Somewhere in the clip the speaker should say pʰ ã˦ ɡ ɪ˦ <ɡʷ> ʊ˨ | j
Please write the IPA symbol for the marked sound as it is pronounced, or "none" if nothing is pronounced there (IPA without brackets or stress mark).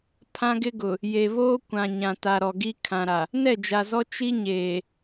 ɡ